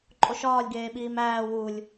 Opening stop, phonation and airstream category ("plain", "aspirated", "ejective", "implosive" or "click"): click